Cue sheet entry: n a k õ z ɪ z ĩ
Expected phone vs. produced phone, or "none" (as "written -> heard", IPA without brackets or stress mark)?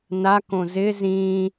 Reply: none